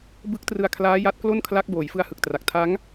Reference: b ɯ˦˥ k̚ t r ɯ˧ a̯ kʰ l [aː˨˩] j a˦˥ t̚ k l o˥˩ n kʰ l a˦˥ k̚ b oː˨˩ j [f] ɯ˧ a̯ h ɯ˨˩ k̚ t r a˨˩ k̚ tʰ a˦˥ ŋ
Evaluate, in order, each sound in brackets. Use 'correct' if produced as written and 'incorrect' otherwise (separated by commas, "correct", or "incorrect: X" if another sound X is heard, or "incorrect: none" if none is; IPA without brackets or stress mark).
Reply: incorrect: aː˦˥, correct